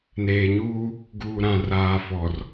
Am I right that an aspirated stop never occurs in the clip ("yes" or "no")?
yes